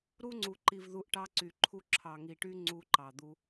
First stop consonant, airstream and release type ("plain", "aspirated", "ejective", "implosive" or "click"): click